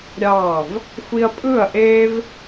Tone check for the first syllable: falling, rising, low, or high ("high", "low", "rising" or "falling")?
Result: falling